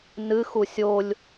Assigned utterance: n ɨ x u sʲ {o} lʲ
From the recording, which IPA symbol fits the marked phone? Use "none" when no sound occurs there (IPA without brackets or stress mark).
o